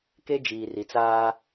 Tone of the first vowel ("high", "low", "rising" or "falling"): high